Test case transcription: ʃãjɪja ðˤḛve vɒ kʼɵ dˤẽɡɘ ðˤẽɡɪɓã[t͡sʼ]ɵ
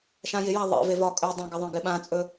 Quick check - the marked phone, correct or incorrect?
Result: correct